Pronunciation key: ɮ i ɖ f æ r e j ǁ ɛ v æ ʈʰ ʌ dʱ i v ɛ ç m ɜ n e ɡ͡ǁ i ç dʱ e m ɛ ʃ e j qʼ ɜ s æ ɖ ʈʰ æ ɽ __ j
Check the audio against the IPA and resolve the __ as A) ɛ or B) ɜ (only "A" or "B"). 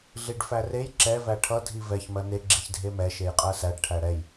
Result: A